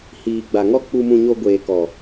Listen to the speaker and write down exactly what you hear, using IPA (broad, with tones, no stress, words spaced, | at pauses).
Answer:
hiː˨ɡ͡ba˨ŋɔ˦ k͡pu˧mũ˧ɲo˧ ɡʷeː˨kɔ˨